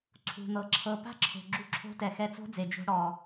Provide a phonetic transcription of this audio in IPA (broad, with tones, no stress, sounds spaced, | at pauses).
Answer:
ǀʰ ṳ˨ n̪ ɤ˨ ǁʰ ɤ˧ p a̤˦ ǁʰ o̤˨ ɡ͡ǁ u˧ ǁʰ o̤˧ t ɛ˨ x ɛ˧ t͡s o̤˦ d͡z e˨ d͡ʒ o̤˧ ɽ ɔ˨